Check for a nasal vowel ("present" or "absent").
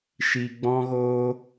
present